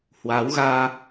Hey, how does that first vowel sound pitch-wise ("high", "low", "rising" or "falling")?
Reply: rising